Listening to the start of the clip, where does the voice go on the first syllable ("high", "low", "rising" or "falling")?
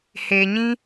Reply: low